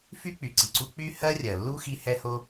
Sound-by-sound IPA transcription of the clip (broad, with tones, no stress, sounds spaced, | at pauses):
f y˦ k͡p y˨ ǀ i˨ ǀ u˧ k͡p y˦ h ɜ˦ rʲ ɜ˨ lː u˦ x i˧ h ɛ˧ h o˧